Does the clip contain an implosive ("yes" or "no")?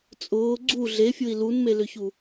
no